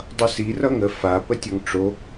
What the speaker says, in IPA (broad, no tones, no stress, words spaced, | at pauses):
dˤʌsi rʌŋə fa pətʲʌŋʈ͡ʂo